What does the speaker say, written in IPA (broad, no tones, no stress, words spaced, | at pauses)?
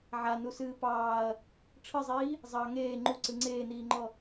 ʕanusɨː pɑːɐ̯ | ʈ͡ʂʰɨzˤiː | zˤɑ ŋeː ŋ͡ǃuǀɨ ŋ͡ǀeːniːŋ͡ǃɔ